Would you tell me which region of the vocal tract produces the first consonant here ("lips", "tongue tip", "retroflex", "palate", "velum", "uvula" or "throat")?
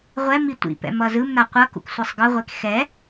uvula